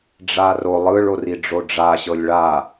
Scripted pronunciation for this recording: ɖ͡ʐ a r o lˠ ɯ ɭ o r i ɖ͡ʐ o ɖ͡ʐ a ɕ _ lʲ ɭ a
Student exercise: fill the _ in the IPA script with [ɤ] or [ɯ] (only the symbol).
ɤ